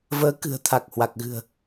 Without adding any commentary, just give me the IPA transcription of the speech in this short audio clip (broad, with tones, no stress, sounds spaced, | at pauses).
v əː˨˦ k ɨ̤˨˩ ə̯ t̪ʰ a˨˩ k̚ h w a˨˩ k̚ ɣ ɨ̤˨˩ ə̯